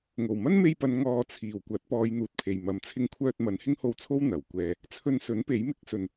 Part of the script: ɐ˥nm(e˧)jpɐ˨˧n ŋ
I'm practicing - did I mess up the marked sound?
no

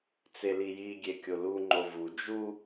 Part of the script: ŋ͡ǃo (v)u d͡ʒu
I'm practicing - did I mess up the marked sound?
no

